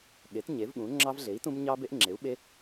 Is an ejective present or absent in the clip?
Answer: absent